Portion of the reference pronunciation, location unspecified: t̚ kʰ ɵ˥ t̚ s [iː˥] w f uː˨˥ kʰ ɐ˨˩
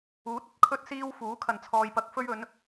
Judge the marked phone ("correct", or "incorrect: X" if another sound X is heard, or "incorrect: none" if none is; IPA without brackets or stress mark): correct